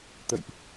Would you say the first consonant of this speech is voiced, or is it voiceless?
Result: voiceless